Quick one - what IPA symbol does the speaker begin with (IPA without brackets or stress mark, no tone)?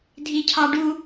dʱ